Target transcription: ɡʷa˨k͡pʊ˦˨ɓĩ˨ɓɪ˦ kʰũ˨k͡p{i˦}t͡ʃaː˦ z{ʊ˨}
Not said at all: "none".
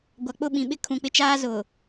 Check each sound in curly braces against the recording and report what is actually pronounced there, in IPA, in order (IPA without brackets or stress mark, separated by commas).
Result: ɪ˦, ʊ˨